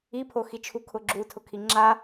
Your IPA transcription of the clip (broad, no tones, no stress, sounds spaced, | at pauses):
i pʰ o x i t͡ʃʰ u kʰ ʊ ɡ͡ǁ u tʰ ʊ kʰ i ŋ͡ǁ a